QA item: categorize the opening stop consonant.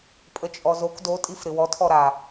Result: ejective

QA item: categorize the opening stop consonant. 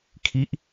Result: aspirated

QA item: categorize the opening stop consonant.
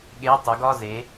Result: implosive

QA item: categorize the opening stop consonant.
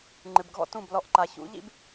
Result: click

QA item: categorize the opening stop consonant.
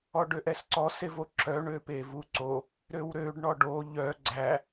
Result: plain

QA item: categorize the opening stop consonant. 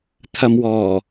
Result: aspirated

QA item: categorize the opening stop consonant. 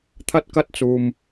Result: aspirated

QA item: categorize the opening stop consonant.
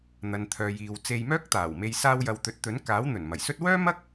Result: aspirated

